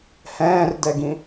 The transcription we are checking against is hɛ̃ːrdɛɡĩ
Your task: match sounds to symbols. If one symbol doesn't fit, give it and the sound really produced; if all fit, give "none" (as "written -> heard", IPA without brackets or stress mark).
none